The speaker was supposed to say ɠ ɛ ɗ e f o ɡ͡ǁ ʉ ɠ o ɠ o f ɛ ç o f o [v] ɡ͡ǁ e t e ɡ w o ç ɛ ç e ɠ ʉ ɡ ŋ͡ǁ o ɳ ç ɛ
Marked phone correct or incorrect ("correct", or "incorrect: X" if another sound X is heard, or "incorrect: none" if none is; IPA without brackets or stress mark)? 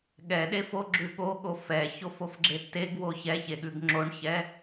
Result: incorrect: f